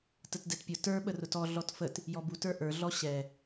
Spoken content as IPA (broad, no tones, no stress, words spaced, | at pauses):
tətdɛtpʲʊ tə˞ ɓərʊtɔ ɮɔtfət | jɔbu tə˞ʔə˞ ɮɔɕɛ